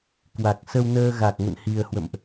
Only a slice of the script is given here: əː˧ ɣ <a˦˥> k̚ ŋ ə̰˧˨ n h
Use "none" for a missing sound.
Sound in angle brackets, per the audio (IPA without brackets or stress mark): a˨˩